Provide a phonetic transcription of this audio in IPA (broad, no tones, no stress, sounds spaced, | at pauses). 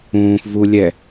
ũː f v u lʲ ɛ